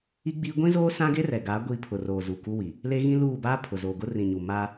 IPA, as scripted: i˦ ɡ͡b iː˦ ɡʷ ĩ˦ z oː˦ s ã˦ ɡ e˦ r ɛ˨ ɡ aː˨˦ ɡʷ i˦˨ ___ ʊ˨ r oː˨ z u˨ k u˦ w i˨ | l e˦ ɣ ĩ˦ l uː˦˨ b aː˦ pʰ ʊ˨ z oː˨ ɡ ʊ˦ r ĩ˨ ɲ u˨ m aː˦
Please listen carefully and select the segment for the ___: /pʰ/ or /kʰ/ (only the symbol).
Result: pʰ